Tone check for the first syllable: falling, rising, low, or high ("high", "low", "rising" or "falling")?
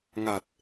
low